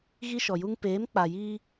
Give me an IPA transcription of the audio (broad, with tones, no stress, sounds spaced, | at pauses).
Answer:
ɣ i˦ ʃ ɔ˨ j u˦ ŋ p eː˨˦ m k͡p a˨ j iː˦